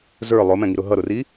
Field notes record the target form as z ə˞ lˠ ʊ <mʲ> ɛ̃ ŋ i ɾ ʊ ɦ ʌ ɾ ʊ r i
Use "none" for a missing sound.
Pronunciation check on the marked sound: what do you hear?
m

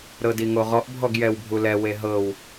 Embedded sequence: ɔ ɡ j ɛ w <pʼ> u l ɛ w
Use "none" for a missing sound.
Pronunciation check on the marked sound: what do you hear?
bʱ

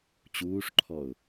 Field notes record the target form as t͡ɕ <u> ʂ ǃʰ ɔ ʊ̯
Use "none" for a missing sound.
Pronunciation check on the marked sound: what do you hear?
uː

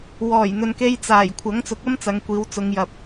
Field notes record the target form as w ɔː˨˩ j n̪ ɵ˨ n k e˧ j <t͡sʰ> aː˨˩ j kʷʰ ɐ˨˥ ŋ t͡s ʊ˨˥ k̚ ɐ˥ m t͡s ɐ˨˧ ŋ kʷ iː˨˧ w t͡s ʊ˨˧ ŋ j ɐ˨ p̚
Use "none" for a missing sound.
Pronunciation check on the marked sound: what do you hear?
t͡s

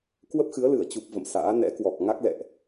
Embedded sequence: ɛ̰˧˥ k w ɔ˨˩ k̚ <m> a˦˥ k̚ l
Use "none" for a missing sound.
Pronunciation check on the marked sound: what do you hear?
ŋ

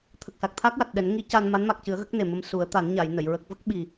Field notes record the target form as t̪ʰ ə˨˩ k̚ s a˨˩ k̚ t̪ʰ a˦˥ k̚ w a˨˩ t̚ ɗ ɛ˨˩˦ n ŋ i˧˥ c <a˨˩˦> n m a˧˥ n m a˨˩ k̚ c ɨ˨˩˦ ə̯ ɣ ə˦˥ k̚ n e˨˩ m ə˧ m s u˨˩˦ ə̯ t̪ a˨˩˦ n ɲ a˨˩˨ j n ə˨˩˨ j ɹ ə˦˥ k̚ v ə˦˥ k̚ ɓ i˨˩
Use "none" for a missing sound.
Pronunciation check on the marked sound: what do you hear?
a˧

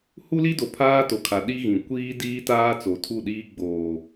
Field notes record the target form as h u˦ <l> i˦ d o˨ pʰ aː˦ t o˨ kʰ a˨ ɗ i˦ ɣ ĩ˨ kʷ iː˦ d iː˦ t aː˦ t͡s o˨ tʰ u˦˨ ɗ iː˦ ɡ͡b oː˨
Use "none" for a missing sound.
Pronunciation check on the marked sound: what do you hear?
l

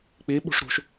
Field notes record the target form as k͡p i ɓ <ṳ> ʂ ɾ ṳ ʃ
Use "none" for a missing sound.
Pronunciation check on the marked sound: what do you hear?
ṳ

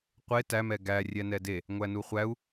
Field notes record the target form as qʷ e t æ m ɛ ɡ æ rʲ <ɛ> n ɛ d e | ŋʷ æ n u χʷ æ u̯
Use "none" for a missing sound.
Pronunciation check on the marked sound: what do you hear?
ɛ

